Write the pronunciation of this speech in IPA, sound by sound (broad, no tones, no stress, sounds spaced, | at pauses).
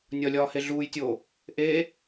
nʲ ɒ lʲ ɒː h e ɮ uː j tʲ oː | ʔ eː